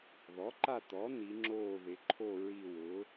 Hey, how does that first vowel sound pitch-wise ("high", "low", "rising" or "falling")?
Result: rising